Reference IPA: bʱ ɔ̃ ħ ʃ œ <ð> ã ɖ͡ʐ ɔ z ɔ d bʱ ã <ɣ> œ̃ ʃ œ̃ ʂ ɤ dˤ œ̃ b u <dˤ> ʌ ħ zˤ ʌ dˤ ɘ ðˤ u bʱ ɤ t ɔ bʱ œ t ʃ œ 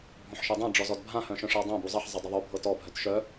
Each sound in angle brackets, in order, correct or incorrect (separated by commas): incorrect, incorrect, incorrect